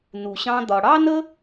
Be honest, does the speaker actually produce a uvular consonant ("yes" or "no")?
no